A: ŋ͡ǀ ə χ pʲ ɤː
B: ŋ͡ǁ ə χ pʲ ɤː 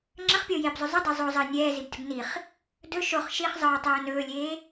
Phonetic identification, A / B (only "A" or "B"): B